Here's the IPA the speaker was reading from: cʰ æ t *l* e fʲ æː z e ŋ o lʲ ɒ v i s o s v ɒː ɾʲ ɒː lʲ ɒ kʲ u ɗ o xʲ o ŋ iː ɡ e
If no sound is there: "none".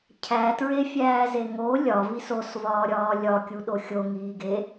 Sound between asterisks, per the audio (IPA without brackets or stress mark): ɹ